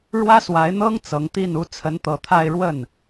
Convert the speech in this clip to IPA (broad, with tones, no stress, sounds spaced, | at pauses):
ɻ w ä˥ s w a˧˥ ɪ̯ n̪ ɤ˥ ŋ t͡s ɤ˧˥ ŋ t̪ i˥˩ n u˧˥ t͡sʰ ə˧˥ n t̪ ɤ˨˩ t̪ʰ a˥˧ ɪ̯ ɻ w ə˥˩ n